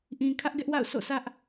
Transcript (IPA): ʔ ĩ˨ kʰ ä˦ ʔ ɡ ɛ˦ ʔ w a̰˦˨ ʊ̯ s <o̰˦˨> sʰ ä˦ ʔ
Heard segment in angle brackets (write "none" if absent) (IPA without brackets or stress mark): o̰˦˨